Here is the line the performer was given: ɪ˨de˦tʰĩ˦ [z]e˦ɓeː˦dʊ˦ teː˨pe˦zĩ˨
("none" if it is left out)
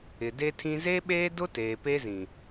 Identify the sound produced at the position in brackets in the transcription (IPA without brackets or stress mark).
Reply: z